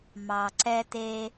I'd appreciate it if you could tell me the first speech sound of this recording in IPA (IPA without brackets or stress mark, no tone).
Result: m